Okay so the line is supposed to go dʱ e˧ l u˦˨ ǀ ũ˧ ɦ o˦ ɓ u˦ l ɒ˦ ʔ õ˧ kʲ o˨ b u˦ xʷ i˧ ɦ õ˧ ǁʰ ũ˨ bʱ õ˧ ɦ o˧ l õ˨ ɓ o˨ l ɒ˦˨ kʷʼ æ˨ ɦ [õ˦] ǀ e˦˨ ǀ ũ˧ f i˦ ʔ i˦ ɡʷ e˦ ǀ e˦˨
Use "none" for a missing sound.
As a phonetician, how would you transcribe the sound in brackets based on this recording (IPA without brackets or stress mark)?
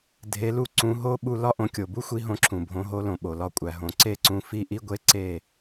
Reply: õ˨